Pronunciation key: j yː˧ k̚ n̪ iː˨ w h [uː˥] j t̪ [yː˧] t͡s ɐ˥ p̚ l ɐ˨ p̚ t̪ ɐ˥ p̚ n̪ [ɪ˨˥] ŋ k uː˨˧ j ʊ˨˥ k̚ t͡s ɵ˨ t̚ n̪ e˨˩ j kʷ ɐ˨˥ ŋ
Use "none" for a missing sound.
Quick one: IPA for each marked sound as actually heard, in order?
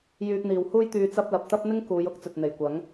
uː˥, yː˧, ɪ˥

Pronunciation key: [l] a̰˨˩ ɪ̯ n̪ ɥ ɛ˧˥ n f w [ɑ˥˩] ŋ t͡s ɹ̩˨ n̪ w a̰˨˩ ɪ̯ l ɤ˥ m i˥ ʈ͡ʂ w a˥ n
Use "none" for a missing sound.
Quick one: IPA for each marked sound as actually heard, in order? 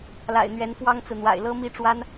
l, ɑ˥

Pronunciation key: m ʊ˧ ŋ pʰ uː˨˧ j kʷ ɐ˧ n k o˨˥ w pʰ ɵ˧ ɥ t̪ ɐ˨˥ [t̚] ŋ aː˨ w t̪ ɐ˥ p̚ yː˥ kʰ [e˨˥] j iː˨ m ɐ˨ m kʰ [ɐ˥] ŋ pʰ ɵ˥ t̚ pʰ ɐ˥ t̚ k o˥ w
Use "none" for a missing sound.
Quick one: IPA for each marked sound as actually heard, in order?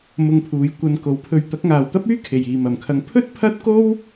k̚, e˨, ɐ˧

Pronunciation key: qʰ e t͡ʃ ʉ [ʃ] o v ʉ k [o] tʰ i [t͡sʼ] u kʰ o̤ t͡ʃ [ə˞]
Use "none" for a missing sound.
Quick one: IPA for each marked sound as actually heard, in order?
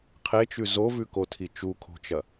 z, o, t͡ʃ, ɐ

